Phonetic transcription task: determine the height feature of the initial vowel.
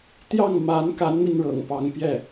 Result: low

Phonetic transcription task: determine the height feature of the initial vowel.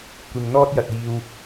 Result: high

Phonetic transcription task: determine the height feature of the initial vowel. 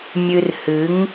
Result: high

